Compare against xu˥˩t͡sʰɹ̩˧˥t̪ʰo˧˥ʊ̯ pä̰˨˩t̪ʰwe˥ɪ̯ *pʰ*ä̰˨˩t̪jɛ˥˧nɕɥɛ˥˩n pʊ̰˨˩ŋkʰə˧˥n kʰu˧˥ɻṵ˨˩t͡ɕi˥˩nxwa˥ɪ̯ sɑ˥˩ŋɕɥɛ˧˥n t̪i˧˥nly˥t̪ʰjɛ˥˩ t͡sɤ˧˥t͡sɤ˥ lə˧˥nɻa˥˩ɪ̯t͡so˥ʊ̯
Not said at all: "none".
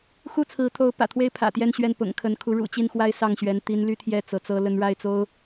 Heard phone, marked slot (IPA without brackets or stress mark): pʰ